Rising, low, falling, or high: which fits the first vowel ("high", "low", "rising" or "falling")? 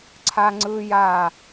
high